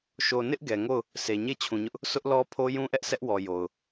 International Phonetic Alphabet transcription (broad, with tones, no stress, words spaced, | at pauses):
ʃo˨nɪ˦ʔ ɡɛ˨ŋo˦˨ʊ̯ | se˨ɲe˦˨t͡ɕʰũ˨ɲʊ˦ʔ | sʊ˦ʔlɔ˦pʰo˦ jũ˦ʔɛ˦ʔ sɛ˦ʔwɔ˨ jo˨ʊ̯